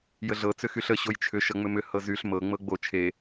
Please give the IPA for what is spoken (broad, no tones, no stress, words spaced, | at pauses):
jəɮɤ t͡sʏxyɬə ɕojt͡ʃʰʏ ʃʌŋ͡mʏmʏ hɤzyɬ mɤ ŋ͡mɤɡ͡bo t͡ʃʰe